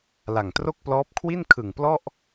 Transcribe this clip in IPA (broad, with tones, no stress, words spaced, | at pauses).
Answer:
la˨˩ŋtro˥˩k̚plɔː˦˥p̚ kʰwi˥˩nkʰɯ˨˩ŋplɔ˥˩ʔ